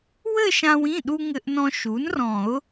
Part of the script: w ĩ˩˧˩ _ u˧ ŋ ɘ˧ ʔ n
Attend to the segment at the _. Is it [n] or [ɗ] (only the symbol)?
ɗ